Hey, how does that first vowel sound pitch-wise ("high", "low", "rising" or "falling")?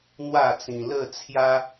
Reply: falling